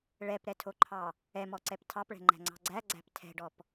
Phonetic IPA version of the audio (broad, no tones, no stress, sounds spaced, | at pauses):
ɭ ɛ p ɾ ɛ tʰ o ǃʰ ɑ | ɛ m ɔ ǀ ɛ p tʰ ɑ p ɭ ɛ̤ ŋ͡ǃ æ̤ ŋ͡ǀ ɑ̤ ɡ͡ǀ æ ɡ͡ǀ æ̤ p tʰ ɛ̤ ɖ ɔ p